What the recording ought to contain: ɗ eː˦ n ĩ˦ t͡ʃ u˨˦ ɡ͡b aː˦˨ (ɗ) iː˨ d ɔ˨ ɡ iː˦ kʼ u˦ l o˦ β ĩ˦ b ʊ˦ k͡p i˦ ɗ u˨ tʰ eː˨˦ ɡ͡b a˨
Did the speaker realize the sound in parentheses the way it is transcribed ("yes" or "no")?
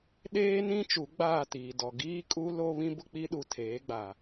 no